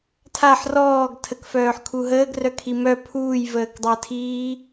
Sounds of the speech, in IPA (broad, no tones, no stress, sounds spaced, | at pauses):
tʰ a ħ r ɔː ɡ tʰ ə k f œː ħ kʰ u ɦ əː ɡ r œ kʰ i m œ pʰ uː j v əː k dˤ əː tʰ iː